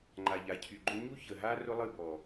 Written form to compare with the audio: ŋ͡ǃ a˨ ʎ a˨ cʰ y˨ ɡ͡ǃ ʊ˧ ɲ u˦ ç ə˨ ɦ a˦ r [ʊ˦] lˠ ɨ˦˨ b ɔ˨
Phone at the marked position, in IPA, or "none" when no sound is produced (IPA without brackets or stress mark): ʊ˦